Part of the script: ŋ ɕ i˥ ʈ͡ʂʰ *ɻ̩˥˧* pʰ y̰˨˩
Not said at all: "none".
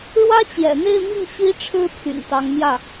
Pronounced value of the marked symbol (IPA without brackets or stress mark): ɻ̩˥